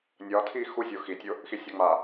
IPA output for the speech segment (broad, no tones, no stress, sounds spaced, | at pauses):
nʲ ɒ tʰ i x u zʲ o x i tʲ o | x i sʲ ɒ ŋ͡m a